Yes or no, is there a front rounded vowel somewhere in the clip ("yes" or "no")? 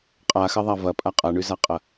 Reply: yes